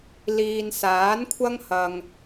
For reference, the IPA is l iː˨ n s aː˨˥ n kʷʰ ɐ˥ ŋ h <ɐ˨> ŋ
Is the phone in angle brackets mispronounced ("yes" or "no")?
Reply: no